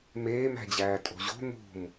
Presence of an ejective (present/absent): present